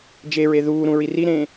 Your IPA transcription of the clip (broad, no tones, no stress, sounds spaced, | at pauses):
d͡ʒ e ɹ e ð uː ɾ ũ ɹ i r i ɾ ẽː